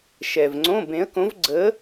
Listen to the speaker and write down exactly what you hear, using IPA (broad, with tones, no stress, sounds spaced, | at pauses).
ʃ ɛ˨ v ŋ͡ǀ õ˧˥˧ b ẽ˧˥ ə̯ k õ˧˥ v ɡ͡ǀ ə˧˥